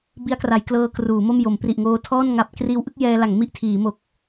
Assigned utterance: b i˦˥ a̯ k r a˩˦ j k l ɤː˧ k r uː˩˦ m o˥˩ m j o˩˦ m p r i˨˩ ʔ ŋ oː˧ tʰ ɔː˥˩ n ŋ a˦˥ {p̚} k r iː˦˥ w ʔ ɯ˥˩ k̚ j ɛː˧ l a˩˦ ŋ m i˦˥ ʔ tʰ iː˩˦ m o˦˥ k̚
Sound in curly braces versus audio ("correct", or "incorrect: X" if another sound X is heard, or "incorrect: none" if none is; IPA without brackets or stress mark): correct